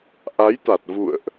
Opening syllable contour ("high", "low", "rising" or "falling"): rising